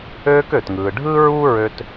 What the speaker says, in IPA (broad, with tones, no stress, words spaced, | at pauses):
øː˧kø˩tŋɯː˩ ɖʱɯː˥ɹu˥ ɹø˧t